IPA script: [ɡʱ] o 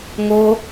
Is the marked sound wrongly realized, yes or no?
yes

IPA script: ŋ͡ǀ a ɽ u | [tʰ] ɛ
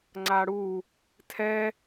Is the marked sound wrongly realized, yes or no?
no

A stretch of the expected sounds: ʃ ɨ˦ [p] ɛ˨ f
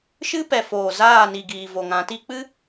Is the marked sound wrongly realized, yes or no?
no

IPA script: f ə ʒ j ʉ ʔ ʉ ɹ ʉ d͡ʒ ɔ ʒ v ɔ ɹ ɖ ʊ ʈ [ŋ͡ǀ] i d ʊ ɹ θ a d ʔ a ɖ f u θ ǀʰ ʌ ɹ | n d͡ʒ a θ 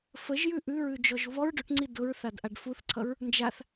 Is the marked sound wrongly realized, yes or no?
no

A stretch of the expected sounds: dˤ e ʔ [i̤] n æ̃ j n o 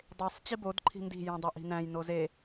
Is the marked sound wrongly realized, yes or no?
no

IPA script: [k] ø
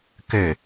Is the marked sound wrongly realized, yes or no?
no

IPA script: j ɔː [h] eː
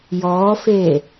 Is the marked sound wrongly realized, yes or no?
yes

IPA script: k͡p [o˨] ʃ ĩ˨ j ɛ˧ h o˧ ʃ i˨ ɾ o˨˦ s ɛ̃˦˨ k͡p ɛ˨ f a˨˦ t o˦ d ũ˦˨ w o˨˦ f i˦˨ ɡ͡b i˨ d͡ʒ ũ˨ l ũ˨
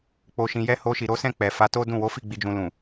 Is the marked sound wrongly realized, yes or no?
no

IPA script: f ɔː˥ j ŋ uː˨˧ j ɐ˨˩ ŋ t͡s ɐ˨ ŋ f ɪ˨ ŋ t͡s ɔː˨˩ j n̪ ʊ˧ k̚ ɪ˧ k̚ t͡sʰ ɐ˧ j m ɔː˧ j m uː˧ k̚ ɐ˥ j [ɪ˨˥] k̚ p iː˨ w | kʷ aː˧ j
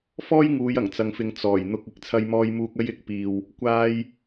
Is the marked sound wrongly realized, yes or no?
no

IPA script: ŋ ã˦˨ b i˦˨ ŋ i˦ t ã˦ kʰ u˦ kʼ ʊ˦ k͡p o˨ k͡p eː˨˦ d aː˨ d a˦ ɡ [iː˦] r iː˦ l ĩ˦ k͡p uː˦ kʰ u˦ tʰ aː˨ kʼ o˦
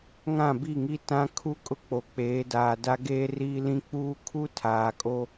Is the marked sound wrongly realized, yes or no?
yes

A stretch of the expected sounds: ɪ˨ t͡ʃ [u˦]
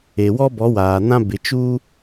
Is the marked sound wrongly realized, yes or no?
yes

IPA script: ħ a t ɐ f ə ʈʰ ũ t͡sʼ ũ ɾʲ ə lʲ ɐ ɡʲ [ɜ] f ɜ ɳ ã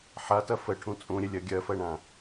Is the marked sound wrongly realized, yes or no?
no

